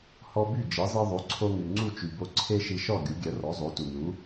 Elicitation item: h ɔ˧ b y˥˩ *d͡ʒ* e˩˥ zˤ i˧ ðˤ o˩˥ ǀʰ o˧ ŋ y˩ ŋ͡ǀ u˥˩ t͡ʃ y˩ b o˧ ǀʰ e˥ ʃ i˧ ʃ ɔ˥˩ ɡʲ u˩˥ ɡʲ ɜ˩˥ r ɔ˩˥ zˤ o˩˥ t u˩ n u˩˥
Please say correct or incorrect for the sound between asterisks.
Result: correct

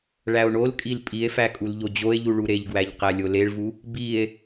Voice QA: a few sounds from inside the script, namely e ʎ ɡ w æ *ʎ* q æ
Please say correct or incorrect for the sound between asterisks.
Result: correct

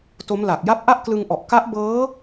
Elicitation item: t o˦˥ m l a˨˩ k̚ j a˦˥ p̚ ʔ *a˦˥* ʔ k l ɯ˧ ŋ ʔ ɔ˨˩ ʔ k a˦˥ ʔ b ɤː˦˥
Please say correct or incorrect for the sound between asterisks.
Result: incorrect: a˥˩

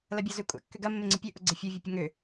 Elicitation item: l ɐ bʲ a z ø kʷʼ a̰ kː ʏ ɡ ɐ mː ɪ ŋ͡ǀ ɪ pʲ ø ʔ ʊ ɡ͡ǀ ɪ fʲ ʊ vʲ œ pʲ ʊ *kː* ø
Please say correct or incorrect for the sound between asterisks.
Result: incorrect: ŋ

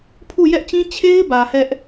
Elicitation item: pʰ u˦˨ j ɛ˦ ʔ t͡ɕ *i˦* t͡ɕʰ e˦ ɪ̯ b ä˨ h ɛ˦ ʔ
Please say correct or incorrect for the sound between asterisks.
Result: incorrect: ĩ˦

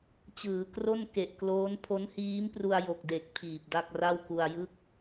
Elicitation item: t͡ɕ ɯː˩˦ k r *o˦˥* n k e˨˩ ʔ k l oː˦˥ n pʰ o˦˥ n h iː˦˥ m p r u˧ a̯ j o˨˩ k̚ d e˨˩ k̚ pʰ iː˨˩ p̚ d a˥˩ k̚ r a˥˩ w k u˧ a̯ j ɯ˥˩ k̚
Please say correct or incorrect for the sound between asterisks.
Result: incorrect: o˥˩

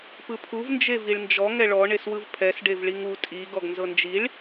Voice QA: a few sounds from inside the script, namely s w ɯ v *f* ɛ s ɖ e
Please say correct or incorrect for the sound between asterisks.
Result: incorrect: pʰ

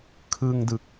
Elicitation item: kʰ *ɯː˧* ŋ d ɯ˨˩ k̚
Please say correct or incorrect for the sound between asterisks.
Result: correct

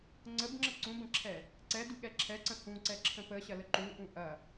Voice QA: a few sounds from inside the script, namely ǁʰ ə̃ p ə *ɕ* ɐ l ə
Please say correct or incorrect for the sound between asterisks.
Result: correct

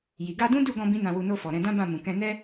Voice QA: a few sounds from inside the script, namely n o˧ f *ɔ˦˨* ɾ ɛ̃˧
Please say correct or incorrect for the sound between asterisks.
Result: incorrect: ɔ˨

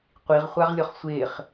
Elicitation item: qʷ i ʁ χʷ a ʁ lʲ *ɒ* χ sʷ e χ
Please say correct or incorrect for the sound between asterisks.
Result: correct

